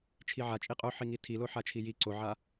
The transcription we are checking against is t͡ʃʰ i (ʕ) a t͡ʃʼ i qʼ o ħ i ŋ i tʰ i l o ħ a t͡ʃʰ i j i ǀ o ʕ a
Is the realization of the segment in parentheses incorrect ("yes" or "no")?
no